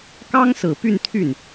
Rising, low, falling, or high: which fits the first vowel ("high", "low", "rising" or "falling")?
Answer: high